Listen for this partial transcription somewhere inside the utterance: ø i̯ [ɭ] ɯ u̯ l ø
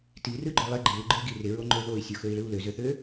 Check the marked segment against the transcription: correct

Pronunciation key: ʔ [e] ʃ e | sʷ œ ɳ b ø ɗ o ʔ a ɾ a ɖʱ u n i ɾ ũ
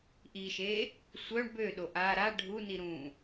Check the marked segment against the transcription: incorrect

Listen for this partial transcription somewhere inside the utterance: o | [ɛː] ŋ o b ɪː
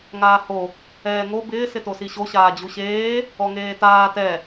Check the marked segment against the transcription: correct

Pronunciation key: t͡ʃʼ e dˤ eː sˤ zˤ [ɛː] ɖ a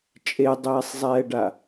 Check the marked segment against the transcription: correct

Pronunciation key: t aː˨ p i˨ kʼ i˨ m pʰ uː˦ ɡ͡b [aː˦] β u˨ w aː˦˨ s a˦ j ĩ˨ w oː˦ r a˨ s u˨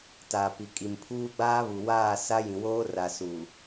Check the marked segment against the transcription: correct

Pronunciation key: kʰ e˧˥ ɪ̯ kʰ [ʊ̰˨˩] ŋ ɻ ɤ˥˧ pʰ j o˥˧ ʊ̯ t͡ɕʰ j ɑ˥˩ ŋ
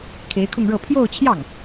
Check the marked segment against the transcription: incorrect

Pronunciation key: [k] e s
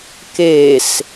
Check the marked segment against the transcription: correct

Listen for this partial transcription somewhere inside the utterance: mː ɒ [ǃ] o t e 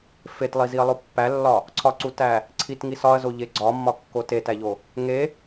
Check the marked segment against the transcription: incorrect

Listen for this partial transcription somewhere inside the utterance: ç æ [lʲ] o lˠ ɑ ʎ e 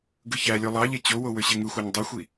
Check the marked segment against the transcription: correct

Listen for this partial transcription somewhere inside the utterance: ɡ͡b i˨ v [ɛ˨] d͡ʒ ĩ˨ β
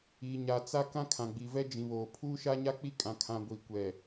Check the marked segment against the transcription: incorrect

